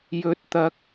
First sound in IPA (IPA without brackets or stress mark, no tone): j